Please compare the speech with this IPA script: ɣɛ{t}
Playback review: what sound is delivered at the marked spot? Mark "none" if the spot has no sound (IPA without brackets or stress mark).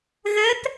t